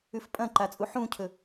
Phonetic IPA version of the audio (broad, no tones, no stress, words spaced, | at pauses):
ʉfpʼɐ̃ǃa t͡sʼuħũcʰɵ